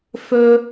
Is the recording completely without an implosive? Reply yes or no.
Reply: yes